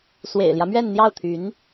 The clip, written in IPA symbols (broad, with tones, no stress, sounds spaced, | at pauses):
s w ḛ˨˩ ɪ̯ l j ä˦ m ɥ ɛ˥˧ n n̪ j ɑ˥˩ ʊ̯ t̪ʰ y˧˥ n